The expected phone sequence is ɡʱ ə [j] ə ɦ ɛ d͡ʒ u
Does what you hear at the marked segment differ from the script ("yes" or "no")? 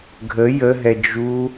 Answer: no